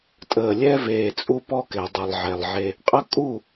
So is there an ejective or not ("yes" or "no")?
yes